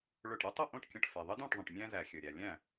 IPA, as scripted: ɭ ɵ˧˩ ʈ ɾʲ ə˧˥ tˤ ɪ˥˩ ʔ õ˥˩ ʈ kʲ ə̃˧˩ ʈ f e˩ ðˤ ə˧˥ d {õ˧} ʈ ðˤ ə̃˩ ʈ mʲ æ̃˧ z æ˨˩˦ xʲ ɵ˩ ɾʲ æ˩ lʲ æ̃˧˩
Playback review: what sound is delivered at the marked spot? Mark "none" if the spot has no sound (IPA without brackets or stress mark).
õ˥˩